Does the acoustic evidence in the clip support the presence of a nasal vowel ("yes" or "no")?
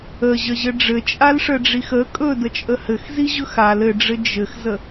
no